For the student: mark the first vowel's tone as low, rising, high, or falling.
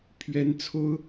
rising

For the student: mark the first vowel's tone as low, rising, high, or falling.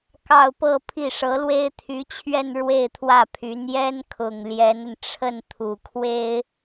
falling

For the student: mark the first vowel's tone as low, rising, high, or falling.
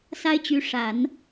high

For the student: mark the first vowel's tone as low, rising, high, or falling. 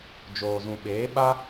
low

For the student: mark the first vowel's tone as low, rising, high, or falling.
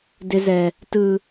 high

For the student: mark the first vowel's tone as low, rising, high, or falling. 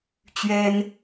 high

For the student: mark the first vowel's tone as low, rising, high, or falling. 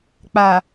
low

